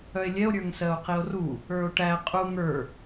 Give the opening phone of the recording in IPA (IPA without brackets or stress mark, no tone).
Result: œ